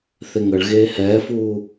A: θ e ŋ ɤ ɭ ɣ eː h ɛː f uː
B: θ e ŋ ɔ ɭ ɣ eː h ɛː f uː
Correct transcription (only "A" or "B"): A